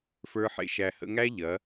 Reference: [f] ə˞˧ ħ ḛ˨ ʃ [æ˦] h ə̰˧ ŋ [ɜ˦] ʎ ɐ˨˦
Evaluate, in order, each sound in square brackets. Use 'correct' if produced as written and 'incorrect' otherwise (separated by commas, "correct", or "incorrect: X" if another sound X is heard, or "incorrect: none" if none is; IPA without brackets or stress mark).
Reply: correct, incorrect: æ˨, incorrect: æ˦